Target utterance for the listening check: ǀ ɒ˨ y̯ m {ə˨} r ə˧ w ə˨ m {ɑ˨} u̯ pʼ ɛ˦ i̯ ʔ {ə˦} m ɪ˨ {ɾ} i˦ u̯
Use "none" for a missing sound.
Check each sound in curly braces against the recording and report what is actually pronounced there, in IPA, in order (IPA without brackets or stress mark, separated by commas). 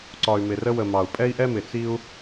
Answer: ɪ˨, ɑ˨, ɛ˦, t͡s